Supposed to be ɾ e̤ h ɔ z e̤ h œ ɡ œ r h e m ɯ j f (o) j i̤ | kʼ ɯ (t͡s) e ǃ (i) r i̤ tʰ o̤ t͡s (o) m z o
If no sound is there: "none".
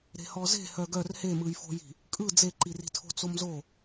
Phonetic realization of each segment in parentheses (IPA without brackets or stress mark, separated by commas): o̤, d͡z, i, o